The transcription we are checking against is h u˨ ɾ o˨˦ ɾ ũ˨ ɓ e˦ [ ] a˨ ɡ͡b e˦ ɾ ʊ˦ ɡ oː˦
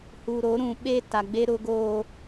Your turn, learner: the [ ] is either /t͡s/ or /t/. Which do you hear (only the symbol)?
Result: t